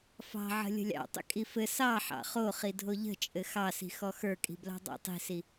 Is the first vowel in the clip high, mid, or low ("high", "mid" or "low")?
low